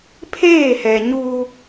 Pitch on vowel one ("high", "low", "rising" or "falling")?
falling